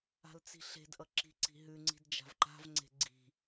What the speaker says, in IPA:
a̤ l t͡s i̤ ɬ e̤ d ʔ ʌ ǁ i̤ ǀ i̤ ɦ ʉ ŋ͡ǀ i̤ d d͡ʒ a̤ v ǃ a̤ v ŋ͡ǀ e̤ ɡ͡ǀ i̤

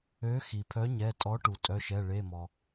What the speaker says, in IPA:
ø˨˥ x i˩ pʰ œ˨˥ ɲ ɛ˩˧˩ tʼ ɔ˨˥ ʈ u˩ tʼ œ˩˧˩ ʃ ɛ˩˧˩ ɭ e˩˧˩ m ɔ˩

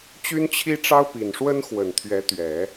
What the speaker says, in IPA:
t͡ɕ y˥ n t͡ɕʰ i˥ ʈ͡ʂ ɑ˥ ʊ̯ p i˨˩ n ʂ w ə˥ n x w ə˨˩ n t̪ʰ ɥ ɛ˧˥ t̪ ɥ ɛ˨˩˦

